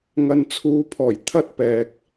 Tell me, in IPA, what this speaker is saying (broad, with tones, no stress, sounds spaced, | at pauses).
ŋ ɐ˨ n t͡sʰ uː˨˧ pʰ ɔː˨˩ j t̪ʰ ɐ˥ t̚ p ɛː˨ k̚